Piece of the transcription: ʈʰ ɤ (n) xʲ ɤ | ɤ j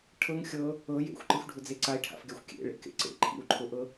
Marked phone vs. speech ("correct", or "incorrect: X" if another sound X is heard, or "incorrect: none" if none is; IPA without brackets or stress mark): incorrect: ŋ